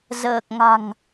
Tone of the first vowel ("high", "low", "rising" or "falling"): low